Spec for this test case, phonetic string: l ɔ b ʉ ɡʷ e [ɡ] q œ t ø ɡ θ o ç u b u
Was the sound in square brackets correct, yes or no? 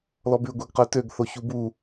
yes